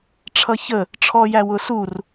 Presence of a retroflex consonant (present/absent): present